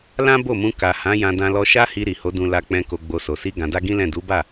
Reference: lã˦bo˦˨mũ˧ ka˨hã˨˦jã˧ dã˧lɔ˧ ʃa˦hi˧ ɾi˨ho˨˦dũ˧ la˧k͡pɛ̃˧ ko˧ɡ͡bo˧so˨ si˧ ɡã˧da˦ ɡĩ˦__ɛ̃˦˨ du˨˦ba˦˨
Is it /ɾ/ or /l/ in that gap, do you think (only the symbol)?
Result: l